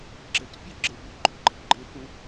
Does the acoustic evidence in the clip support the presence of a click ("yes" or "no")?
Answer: yes